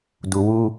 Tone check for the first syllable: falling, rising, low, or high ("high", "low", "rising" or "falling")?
low